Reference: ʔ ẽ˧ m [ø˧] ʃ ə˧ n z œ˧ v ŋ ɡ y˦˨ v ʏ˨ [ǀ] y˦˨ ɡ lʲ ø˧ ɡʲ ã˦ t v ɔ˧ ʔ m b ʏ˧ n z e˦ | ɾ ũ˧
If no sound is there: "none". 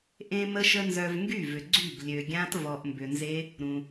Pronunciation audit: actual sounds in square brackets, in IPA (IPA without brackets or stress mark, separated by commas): ə˧, ɡ͡ǀ